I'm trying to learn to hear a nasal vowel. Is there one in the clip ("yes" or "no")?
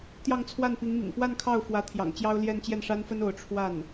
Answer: no